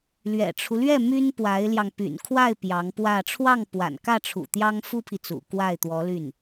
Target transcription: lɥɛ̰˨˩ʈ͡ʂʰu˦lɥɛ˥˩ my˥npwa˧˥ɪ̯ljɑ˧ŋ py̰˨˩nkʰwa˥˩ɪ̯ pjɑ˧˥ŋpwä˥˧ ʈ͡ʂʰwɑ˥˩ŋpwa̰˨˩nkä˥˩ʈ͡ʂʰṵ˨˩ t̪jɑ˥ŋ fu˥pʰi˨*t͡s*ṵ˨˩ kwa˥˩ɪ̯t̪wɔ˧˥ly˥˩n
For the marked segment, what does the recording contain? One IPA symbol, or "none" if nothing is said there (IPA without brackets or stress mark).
t͡s